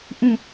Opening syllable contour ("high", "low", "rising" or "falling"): falling